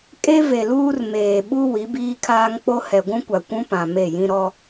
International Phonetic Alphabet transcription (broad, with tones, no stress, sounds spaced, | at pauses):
kʼ e˦ v e˨ l uː˦ r m eː˨ ɓ u˦ w i˨˦ b iː˦ kʰ aː˦ ŋ k͡p o˦ h ɛ˨ ɡʷ ũ˦ kʷ a˨ kʷ ũ˦ p ã˨ m e˦˨ j ĩ˦ ɾ ɔ˦